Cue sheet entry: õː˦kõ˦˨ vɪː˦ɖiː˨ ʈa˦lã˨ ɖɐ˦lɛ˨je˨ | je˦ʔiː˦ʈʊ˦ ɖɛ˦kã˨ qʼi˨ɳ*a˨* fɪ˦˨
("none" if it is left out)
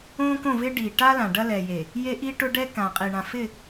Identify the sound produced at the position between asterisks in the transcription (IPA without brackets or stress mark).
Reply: ã˨